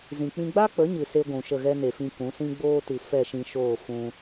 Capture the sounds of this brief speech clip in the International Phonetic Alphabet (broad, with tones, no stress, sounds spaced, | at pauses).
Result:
z ĩ˨ k͡p ĩ˧ ɡ͡b a˦ k͡p ə˨˦ ɲ ɨ˨ s e˦ ɡʷ ũ˨ ʃ ə˦˨ ɣ ɛ˦ n e˨ f ĩ˧ k ũ˨˦ s ĩ˦ ɡ͡b oː˦ t ɨ˨ f ɛ˦˨ ʃ ĩ˧ ʃ oː˦˨ f ũ˦